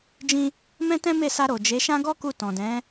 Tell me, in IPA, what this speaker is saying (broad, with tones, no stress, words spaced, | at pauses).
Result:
d͡ʒĩ˧ | mɛ̃˦tɛ̃˦me˦˨sa˧ ɾo˨d͡ʒe˨˦ʃã˦ ɡɔ˦ku˧ tɔ̃˨dɛ̃˨˦